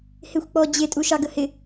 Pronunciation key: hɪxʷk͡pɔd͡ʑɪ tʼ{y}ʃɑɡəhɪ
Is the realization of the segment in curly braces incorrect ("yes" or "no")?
yes